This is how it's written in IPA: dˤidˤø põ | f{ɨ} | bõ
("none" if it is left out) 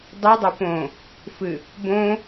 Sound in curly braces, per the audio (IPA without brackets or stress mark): ɨ